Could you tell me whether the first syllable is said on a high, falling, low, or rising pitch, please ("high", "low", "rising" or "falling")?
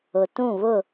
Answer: low